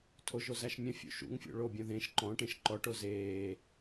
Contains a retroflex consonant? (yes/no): yes